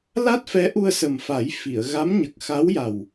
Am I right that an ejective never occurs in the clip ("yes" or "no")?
yes